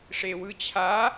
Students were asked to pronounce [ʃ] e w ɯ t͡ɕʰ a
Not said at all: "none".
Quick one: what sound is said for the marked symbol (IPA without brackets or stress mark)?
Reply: ʂ